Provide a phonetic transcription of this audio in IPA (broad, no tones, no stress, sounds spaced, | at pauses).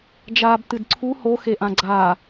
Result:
d͡ʒ aː b t ɨ d ǀʰ u h o x e ʔ ã ɡ͡ǀ aː